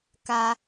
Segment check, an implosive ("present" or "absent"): absent